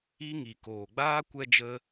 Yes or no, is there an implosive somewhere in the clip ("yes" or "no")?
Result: no